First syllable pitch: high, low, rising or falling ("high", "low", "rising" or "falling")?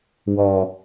low